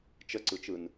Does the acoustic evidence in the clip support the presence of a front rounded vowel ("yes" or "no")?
no